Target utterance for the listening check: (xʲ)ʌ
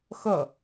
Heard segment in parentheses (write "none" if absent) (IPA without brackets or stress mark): x